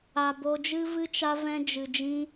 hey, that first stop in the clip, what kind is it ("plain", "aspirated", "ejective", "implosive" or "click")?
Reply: plain